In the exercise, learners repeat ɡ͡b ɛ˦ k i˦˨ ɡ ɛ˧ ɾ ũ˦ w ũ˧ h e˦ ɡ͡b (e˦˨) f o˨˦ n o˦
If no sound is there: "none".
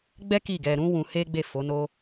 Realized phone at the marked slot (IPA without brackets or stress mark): e˦˨